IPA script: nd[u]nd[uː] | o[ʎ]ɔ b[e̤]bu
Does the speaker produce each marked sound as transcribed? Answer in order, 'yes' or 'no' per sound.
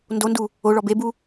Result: no, no, no, no

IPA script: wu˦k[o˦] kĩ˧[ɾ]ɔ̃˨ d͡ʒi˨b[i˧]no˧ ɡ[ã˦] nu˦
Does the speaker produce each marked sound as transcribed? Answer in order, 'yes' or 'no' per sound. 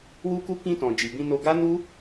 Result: no, no, no, no

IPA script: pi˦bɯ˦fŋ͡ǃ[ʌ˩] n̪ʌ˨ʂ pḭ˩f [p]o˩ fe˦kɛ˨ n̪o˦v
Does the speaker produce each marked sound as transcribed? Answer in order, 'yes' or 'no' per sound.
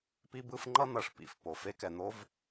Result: no, yes

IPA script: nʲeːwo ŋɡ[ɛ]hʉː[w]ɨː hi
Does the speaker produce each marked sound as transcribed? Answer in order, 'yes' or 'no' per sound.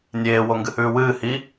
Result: no, yes

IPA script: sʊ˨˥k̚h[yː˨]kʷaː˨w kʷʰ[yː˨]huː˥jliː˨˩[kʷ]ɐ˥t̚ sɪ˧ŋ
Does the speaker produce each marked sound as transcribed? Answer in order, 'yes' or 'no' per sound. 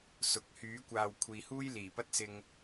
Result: no, no, no

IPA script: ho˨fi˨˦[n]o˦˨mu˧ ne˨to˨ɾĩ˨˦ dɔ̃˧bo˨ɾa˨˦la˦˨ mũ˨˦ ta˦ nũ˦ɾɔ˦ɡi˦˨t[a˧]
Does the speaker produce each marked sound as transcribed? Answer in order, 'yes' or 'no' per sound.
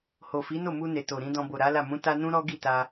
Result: yes, yes

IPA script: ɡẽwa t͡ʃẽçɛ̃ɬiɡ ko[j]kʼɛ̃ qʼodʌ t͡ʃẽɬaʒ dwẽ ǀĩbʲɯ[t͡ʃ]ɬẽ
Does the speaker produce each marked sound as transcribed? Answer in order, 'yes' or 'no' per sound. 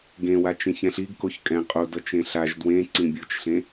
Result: no, yes

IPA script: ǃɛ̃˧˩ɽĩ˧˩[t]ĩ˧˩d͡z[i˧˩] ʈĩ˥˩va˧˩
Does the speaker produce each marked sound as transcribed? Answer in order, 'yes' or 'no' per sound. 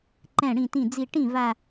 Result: yes, yes

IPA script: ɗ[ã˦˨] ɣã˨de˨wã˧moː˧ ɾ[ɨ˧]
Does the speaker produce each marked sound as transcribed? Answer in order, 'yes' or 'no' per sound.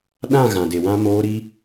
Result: yes, no

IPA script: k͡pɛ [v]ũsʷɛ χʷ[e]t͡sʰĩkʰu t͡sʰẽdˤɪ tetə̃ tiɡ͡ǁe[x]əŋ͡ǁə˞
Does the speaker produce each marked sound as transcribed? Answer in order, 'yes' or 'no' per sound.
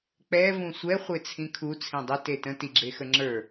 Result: yes, yes, yes

